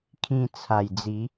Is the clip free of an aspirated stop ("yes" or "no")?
no